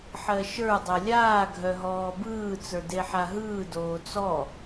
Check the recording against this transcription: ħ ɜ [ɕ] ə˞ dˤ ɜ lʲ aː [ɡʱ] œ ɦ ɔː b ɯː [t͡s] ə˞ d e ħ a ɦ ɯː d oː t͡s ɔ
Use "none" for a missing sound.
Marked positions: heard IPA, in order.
ʃ, ɡʱ, t͡s

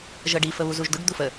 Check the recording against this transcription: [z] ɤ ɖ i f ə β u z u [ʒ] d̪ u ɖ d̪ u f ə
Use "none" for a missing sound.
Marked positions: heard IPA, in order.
ʒ, ʒ

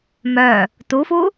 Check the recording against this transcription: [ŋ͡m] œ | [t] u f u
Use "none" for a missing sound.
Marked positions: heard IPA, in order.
m, t

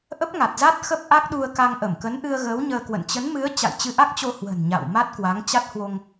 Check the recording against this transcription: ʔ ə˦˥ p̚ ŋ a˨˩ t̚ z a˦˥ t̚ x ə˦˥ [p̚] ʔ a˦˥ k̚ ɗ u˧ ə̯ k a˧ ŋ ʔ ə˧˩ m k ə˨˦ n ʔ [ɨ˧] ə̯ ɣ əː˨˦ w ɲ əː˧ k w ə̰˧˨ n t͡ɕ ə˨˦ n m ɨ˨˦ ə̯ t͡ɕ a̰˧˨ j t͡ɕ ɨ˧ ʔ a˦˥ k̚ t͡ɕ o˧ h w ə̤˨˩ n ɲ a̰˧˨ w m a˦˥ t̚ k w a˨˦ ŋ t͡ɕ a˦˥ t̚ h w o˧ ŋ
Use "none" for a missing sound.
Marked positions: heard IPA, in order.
p̚, ɨ˧

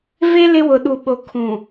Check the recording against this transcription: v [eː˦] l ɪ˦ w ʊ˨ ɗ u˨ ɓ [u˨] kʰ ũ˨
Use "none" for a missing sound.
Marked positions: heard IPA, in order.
e˦, o˨

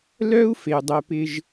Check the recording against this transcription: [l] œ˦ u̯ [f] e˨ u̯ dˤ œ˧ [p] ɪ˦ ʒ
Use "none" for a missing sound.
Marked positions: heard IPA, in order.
l, f, p

